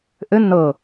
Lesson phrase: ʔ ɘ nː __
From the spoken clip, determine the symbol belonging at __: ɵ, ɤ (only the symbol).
ɤ